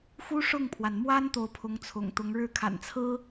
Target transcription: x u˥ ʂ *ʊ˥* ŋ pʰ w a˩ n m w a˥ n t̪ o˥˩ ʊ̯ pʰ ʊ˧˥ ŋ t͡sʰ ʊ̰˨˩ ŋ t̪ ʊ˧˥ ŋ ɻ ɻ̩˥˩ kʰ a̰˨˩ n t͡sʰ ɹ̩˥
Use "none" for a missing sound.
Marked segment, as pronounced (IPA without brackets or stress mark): ʊ˥˩